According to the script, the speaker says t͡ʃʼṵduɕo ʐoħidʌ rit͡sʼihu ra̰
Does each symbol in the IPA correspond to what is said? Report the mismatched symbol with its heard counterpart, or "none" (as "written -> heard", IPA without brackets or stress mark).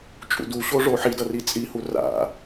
none